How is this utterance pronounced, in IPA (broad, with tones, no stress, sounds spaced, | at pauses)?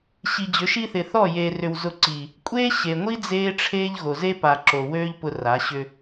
ɕ i˨ d͡ʑ ʏ˨˦ ʃ i˦ θ ɪ˨ θ ɔ˦˨ j eː˨ r ʏ˨ w z ʊ˦˨ ǀ iː˨ | kʷʼ eː˦ ɕ e˨ ŋʷ i˦ d͡z eː˦ ʈ͡ʂʰ eː˦ ʎ ɣ o˨ z e˦ p a˨ ǁ o˨ w øː˦ ʎ p ʊ˦ r a˨˦ ɕ ʏ˦